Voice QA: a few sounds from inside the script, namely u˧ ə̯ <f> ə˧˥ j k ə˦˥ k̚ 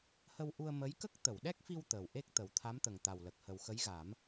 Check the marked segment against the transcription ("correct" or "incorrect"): incorrect